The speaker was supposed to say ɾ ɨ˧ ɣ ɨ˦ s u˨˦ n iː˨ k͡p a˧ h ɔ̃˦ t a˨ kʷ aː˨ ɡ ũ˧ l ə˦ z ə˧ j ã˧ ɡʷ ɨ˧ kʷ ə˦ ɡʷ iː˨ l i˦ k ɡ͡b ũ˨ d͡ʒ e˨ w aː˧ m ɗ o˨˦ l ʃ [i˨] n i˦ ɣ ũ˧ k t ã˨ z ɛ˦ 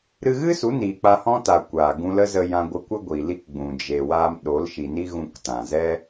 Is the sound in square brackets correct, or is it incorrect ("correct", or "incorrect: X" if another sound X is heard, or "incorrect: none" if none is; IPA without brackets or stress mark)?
correct